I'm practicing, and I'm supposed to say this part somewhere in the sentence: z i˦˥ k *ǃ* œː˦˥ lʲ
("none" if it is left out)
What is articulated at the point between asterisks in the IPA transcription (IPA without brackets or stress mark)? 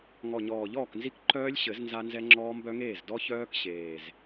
ǃ